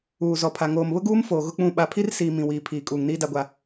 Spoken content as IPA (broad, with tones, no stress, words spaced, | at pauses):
uː˨ zɔ˨pʰa˨ ŋoː˨mβʊ˦ɡuː˦m foː˨ɣʊ˦k͡pũ˦˨ ɓa˨pʰi˦rsiː˨ mĩ˨wiː˨pʰiː˨ kʼuː˨ŋniː˦da˦ɡʷa˦